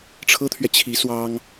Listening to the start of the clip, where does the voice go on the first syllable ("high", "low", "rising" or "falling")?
high